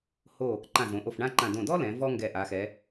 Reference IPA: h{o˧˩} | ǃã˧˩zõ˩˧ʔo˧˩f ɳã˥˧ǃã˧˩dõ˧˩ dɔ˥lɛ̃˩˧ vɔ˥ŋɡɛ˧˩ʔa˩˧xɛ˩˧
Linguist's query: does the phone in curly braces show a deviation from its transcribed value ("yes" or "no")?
no